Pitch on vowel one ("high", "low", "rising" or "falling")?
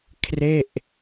falling